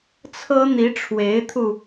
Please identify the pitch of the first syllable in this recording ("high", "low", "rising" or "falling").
high